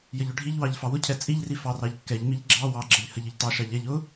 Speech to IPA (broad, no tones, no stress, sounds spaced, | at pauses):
j ə ʎ ʊ ɖʱ i ʎ w ɑ ʎ f ɑ w ʊ cʰ ɛ t͡sʼ i ʎ r i f ɑ r ɑ ʎ kː ɛ ʎ m i ʎ ɡ͡ǁ ɑ w ɑ ɡ͡ǁ ə ʎ h ə ʎ ə ʎ t ɑ ʃ ɑ ʎ ɛ ʎ ʊ